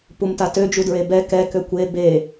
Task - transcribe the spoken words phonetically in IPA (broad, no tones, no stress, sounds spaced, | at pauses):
p u m t a t ø d͡ʒ u d ɹ e b ɛ k ɛ k ø kʷ e b e